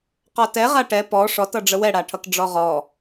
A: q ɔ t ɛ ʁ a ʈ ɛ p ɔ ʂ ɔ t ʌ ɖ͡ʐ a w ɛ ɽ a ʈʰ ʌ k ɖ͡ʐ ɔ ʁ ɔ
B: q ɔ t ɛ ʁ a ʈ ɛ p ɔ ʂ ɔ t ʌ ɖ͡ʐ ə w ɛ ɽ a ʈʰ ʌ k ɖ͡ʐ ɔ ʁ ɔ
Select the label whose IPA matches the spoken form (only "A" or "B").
B